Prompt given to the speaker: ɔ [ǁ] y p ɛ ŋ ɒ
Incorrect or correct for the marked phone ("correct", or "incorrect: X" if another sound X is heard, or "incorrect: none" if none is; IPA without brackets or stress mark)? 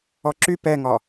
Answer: correct